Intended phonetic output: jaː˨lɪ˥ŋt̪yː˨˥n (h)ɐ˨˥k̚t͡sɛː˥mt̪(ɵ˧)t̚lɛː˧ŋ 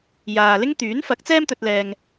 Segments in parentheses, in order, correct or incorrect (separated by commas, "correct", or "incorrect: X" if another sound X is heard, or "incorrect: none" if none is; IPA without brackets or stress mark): incorrect: f, correct